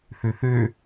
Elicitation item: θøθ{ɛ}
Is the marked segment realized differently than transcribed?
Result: yes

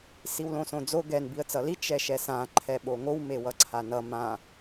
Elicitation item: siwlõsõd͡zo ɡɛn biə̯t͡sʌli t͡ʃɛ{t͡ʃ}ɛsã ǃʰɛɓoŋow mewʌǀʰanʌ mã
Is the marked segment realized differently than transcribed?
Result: yes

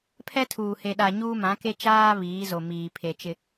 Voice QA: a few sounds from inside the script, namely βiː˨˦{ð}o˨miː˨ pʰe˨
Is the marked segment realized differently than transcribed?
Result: yes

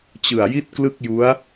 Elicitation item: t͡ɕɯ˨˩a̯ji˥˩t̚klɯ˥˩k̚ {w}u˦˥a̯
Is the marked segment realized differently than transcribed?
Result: yes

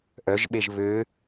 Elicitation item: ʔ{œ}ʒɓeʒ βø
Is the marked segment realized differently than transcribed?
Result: no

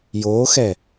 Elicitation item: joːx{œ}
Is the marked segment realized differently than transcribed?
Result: yes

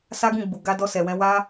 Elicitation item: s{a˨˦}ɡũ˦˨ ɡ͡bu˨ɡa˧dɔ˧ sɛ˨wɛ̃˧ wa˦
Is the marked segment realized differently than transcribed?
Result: yes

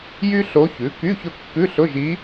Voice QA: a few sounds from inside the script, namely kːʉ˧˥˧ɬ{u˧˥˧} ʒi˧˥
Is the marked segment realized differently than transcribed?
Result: yes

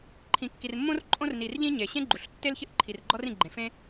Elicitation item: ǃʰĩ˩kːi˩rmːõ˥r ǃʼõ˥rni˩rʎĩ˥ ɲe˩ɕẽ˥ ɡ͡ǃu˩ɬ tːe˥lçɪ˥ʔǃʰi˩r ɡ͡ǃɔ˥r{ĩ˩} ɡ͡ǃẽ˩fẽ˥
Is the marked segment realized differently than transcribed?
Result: no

